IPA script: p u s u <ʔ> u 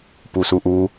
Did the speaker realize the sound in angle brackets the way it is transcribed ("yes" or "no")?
yes